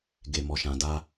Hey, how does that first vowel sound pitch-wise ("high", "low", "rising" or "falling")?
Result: low